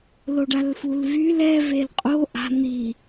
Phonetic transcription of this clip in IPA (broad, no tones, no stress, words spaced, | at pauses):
loɖalfulvyl ɛ velqʼo ʔa̤ n̪i